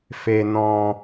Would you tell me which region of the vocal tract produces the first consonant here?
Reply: lips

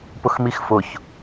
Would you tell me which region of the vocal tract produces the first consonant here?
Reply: lips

